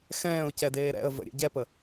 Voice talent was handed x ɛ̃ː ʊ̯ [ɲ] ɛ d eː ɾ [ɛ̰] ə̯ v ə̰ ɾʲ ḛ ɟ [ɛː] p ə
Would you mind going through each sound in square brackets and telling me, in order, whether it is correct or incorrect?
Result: incorrect, correct, incorrect

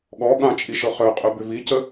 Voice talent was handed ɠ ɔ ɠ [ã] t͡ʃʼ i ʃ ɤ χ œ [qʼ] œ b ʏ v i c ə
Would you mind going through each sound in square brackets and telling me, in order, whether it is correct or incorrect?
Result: correct, correct

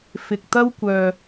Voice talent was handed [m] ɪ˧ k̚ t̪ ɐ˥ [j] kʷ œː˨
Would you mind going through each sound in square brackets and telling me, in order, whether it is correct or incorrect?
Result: incorrect, incorrect

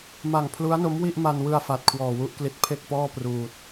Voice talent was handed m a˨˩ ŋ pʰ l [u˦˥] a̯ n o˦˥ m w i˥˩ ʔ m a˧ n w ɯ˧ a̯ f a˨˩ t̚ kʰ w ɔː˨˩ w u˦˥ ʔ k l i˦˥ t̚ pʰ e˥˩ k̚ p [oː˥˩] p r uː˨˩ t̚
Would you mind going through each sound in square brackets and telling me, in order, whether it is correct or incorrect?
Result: correct, incorrect

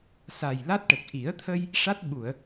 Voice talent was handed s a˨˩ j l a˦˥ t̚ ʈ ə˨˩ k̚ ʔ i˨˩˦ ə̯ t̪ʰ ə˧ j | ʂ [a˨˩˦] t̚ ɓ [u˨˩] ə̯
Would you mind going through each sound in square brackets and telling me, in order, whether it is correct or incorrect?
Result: incorrect, incorrect

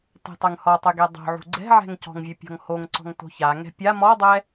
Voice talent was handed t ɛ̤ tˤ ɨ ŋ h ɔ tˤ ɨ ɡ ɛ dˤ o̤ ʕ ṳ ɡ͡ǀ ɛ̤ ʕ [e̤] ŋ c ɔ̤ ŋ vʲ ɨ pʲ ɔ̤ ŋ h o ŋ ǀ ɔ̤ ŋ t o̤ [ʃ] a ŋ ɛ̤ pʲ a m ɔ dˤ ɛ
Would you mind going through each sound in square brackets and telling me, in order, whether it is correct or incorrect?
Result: incorrect, incorrect

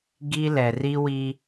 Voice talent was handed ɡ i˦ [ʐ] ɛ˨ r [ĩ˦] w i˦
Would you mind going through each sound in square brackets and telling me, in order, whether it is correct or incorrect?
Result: incorrect, incorrect

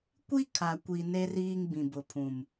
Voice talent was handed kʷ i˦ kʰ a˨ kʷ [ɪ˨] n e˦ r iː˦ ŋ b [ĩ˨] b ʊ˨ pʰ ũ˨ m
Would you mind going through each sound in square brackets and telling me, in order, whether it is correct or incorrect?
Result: incorrect, correct

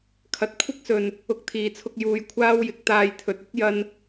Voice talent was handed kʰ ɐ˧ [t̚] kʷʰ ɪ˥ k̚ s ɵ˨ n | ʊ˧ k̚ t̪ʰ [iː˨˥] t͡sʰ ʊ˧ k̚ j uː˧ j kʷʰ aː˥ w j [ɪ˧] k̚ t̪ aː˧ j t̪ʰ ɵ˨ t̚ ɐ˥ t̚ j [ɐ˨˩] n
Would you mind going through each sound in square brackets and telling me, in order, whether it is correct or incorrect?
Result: correct, incorrect, incorrect, incorrect

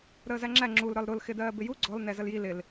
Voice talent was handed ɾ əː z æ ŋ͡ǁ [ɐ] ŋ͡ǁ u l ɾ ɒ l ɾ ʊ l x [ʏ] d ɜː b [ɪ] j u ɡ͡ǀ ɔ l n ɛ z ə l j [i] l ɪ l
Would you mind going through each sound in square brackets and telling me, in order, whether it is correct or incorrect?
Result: incorrect, incorrect, correct, correct

